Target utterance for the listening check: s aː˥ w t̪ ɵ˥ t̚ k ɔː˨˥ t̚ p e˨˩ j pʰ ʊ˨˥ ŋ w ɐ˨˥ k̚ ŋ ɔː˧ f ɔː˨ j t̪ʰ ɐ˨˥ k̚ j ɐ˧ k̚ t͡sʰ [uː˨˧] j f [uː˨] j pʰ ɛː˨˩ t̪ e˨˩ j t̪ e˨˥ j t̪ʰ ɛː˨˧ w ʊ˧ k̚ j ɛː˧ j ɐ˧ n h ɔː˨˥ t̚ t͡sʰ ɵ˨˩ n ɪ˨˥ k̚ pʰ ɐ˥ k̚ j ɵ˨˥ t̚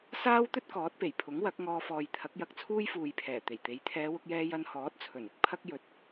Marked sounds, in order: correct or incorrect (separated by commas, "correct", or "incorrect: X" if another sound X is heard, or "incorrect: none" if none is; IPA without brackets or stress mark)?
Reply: incorrect: uː˥, correct